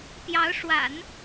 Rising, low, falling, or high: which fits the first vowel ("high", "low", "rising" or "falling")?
rising